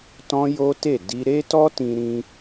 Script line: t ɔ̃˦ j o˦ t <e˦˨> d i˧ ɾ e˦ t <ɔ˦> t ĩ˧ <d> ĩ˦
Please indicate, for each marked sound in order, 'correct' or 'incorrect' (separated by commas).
correct, correct, incorrect